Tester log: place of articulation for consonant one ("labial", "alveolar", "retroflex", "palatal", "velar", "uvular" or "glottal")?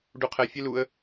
retroflex